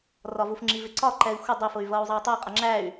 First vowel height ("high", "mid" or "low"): low